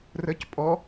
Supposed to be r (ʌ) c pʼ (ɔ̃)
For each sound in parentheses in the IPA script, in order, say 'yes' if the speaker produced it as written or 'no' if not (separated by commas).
no, no